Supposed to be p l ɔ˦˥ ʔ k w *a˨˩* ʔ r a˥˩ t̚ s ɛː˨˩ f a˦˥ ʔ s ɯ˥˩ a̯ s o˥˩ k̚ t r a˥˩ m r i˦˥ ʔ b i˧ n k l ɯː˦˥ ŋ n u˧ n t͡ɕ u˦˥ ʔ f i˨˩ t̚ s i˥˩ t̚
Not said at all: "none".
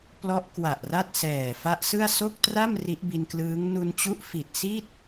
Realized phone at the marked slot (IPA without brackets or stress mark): a˨˩